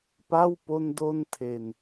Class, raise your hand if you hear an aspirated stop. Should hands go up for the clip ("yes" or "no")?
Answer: yes